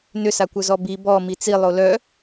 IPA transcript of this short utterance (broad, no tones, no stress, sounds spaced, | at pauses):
n ʏ s a kʷ œ z ɔ b i b ɔ m i t͡s i lˠ o l œ